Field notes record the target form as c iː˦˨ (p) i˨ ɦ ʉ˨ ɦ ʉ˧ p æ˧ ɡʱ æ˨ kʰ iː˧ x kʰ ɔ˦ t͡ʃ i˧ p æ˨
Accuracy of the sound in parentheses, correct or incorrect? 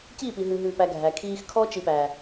correct